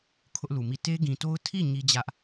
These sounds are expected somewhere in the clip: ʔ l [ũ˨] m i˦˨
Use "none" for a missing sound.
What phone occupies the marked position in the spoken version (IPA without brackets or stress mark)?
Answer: u˨